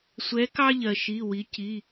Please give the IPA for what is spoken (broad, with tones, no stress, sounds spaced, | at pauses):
sʷ ɛ˨˥ k ɑ˦ ʎ ɜ˩ ʃ i˩˧˩ w i˩˧ c i˩˧˩